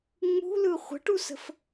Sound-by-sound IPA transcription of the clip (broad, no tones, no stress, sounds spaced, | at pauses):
ŋ͡m ṳ l ɯ χʷ ə̤ ʈ u s ə̤ f